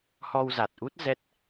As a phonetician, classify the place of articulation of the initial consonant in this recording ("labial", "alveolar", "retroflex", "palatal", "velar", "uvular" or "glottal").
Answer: glottal